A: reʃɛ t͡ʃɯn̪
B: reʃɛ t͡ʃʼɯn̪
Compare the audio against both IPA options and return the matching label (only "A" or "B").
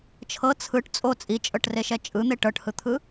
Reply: B